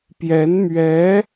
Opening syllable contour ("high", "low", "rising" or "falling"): rising